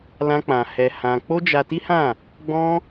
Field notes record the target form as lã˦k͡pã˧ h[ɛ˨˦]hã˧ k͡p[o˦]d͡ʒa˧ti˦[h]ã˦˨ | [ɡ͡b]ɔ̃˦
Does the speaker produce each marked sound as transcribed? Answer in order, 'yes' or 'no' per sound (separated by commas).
no, yes, yes, yes